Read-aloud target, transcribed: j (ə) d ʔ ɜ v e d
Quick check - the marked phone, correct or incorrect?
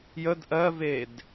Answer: correct